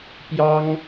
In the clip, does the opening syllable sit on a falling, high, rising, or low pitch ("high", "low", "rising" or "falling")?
high